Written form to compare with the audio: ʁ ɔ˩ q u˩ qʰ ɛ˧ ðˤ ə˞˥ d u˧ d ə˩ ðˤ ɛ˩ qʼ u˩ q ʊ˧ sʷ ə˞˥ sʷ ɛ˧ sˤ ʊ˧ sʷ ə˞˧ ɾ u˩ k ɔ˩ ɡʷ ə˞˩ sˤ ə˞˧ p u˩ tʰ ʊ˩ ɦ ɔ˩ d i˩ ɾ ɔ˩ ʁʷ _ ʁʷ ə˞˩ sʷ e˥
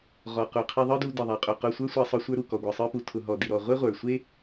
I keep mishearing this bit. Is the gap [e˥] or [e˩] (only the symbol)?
e˥